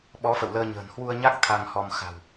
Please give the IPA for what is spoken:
ɓ ɔ˨˦ f ə̰˧˨ w l əː˧ ɲ ə̤ː˨˩ n h w u˧ ə̯ ɲ a˦˥ k̚ t̪ʰ a˧ ŋ h ɔ˧ m x a̤˨˩ w

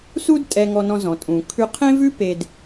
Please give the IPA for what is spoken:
s u˥ d tʼ ɛ˧ ŋ ɔ˧ n ɔ̃˧ z ɔ̃˩ tʼ ũ˩ kʰ ʉ˧ qʰ ẽ˥ v ʉ˥ p e˧ d

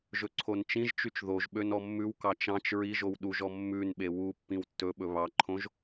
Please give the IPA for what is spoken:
ʒ ɵ ǀʰ o n t͡ʃ ĩ ʒ t͡ʃ y t͡ʃ ð o ʒ ɓ ø n ɔ mː ʉ w k ɑ t͡ʃ ɑ̃ t͡ʃ ɹ i ʒ o w ɗ u ʒ ɔ mː ʉ n ɓ e w u pː ĩ w tː ɵ ɓ ɵ β ɑ ǃʰ õ ʒ

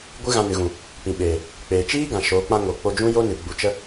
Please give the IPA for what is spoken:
ɡʷ ɨ˦ ɣ ã˧ n ɨ˨ ɣ ũ˨ | p ĩ˨ ɓ eː˨ | k͡p eː˨ t͡ʃ iː˦ ɡ ã˨ ʃ o˨˦ k͡p ã˦ ŋ o˨ k͡p o˧ d͡ʒ ũ˦ j o˦ n ɨ˨ ɡ͡b u˨ t͡ʃ ə˧

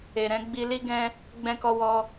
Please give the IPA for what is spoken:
e˨ ɾ ɛ̃˧ ɡ͡b i˧ l i˦ ɡ ɛ̃˦ | ɡ͡b ɛ̃˧ k ɔ˧ w ɔ˧

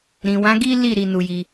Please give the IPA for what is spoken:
ɾ ĩ˨ w ã˨˦ ɡ i˦ l i˦˨ ɾ i˧ n u˧ j i˧

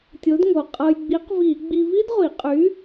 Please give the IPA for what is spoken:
tʲ o˨˥ d ŋ o˨˩ qʼ ɤ˧ j ɡ͡b i˨˥ q v i˧˩˧ ɡ͡b i˧ v i˥ d ʁʷ i˧˩˧ qʼ y˨˥

